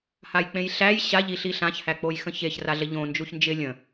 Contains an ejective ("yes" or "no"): no